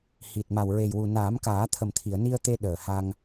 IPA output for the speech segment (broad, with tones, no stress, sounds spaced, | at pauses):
h i˨˩ t̚ m a˨˩ w ɹ e˨˩ j w u˨˩ n aː˨˩˦ m k aː˨˩˦ t̪ʰ ə˨˩ m t̪ʰ i˨˩˨ ə̯ n i˧ ə̯ t̪ e˧ ɗ əː˨˩ h a˧ ŋ